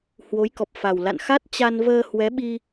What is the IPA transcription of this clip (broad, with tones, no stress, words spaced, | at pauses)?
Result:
hwo˨˦jkɔ˨˩p̚fa˨˩wla̰˧˨n xa˦˥t̚ t͡ɕa˧nvəː˧ hwɛ˨˦ɓi˧